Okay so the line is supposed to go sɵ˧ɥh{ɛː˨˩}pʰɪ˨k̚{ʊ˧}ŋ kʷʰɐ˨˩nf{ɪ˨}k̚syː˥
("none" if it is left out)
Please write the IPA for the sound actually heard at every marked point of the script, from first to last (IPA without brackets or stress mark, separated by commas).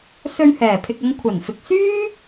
ɛː˨˩, ʊ˧, ɪ˨